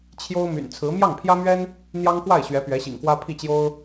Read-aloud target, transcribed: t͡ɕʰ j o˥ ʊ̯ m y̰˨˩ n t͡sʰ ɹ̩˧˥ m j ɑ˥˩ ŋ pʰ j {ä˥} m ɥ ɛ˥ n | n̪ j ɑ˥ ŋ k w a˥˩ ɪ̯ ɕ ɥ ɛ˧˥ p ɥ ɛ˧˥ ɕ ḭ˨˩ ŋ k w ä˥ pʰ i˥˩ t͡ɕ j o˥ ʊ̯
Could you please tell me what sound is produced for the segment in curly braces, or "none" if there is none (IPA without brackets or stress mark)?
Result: ä˥